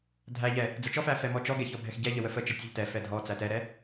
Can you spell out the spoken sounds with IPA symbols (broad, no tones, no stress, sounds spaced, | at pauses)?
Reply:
dʱ æ ʎ ɛ | d͡z ə t͡ʃ ɔ f æ f ɛ m ɔ t͡ʃ ɔ ɡ ɛ ç ɔ bʱ ɛ x ɟ ɛ ʎ ə w ə f ə t͡ʃ ə tʲ ɛ ʎ t ɛ f ɛ dʱ ɔ t͡s æ t ɛ ɾ ɛ